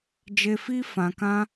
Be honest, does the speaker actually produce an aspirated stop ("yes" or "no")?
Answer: no